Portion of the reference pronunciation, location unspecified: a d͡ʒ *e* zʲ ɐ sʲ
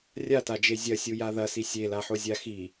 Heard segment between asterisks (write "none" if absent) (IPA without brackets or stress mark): e